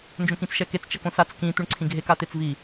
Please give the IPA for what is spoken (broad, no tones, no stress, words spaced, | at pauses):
nd͡ʒõkĩt͡sʃɛket͡s t͡ʃɐkõsat͡s kĩ t̪uɳǀʰĩɡʱek at̪et͡svi